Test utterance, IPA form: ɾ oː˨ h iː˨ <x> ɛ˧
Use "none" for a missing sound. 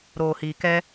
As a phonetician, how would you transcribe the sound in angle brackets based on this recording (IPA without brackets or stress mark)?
k